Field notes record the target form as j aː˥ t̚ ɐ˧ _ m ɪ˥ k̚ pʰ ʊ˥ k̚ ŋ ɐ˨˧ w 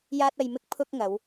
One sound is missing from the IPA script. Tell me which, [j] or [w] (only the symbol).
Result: j